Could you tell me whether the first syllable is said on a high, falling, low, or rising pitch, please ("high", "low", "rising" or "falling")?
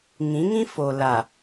rising